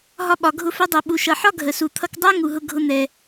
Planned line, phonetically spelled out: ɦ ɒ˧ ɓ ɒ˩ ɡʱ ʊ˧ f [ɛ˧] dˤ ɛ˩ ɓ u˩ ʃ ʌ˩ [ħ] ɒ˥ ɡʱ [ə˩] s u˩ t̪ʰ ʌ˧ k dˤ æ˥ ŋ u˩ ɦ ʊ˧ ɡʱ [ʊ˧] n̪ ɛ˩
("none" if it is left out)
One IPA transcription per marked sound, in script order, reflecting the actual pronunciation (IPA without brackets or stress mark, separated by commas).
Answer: ɛ˧, ħ, ə˩, ʊ˧